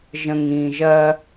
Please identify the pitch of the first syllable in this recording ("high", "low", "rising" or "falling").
low